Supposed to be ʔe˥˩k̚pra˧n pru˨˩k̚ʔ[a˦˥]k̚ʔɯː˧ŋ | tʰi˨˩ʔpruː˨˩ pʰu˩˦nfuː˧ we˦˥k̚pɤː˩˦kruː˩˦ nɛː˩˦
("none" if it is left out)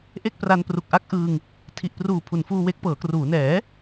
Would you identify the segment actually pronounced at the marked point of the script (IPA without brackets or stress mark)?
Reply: a˦˥